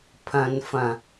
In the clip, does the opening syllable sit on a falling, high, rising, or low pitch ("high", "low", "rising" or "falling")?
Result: low